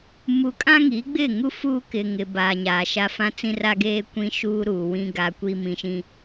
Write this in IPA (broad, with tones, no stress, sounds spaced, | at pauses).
m u˨ kʼ ã˦ ŋ i˨˦ ɡ͡b ɪ˦˨ ŋ u˦ f uː˦ k ɪ˨ ŋ ɪ˨ b aː˨ ɲ aː˨ ʃ a˦ f ã˦ t͡s ĩ˦ r a˦ ɡ eː˦ kʷ ĩ˦ ʃ uː˦ ɾ uː˨ w ĩ˦ ɡ a˦ kʷ i˦ m ĩ˨ ʃ ĩ˦